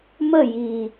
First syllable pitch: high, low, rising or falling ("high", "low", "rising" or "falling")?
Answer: falling